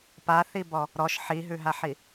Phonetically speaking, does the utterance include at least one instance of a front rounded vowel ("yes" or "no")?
no